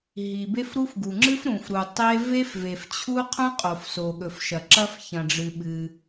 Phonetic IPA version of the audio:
ɦ i˩ b e˥ f ɾ u˥ f ɡ u˩ ŋ͡ǁ ɨ˥ f ɾ ũ˩ f ɾ u˩ tˤ e˥ v e˥ f v e˩ f t͡ɕʰ u˥ qʰ ũ˥ qʼ o˩ f s o˩ ɠ ɵ˩ f ʃ ɐ˩ ǁ ɐ˥ f ç ɐ̃˩ ɖ͡ʐ ɨ˩ ɓ ɨ˩

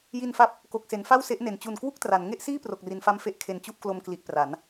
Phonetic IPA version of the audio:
j i˧ n f a˦˥ p̚ | k o˨˩ k̚ s e˩˦ n f a˥˩ w s e˦˥ ʔ n e˩˦ n t͡ɕ u˨˩ n k w u˥˩ k̚ t r a˩˦ n ŋ e˥˩ ʔ s iː˥˩ p r o˨˩ k̚ r i˩˦ n f a˧ m f e˦˥ ʔ kʰ e˨˩ n t͡ɕ u˥˩ ʔ k l o˧ m k l i˨˩ ʔ p r a˩˦ n

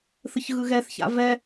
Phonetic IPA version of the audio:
θ ɯ ç ɣ ɯ ɣ ɛ θ ç a̰ v ɛ

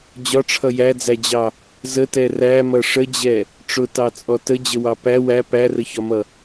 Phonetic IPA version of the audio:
d͡ʑ ɒ ʈ͡ʂʰ ʌ j æ d͡z æ d͡ʑ ɑ | z ə t ɛ r æ m ʌ ʂ ə d͡ʑ ɛ | ʈ͡ʂ ʊ t ɑ t͡sʼ ɔ t ə d͡ʑ ə w ɑ p æ w æ p æ r ə ç ɒ m ʌ

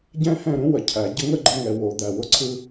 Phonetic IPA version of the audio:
ɟ ɛ̃˦ h ɛ̃˦˨ ɾ ũ˦ w ə˨ cʰ æ˨ ɟ ə˦ ŋ ə˦ ɡ͡ǃ ə˧ ŋ ɛ˨ w o˨ d̪ æ˨ w ʊ˧ ǀʰ ɯ˧

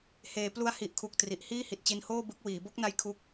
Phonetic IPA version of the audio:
h eː˩˦ p l u˦˥ a̯ h i˨˩ ʔ kʰ u˨˩ k̚ t r i˨˩ ʔ h iː˥˩ h i˨˩ t̚ t͡ɕ i˧ n h oː˥˩ b ɯ˦˥ k̚ w iː˩˦ b o˥˩ k̚ n a˦˥ j kʰ u˦˥ k̚

